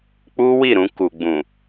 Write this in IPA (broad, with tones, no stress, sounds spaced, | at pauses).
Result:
k͡p u˦ w i˦˨ ɾ ũ˧ k u˨ ɡ͡b ũ˨